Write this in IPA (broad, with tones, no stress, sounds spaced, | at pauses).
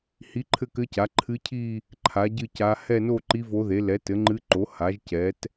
h i˧˥ ǃʰ ɘ˥˧ k ɘ˧˥ c a˩˥ ǃʰ ɨ˧˥ cʰ i˥˧ | ǃʰ a˩˥ ɟ ɨ˥˧ c a˧˥ h ɛ˥˧ n o˥˧ ǃ i˧˥ v o˧˥ ð e˩˥ l ɛ˩˥ t ɘ˩˥ ŋ͡ǃ ɨ˧˥ ǃ o˩˥ h a˩˥ ʒ c ɛ˩˥ t